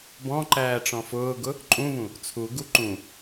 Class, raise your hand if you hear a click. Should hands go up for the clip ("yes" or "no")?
yes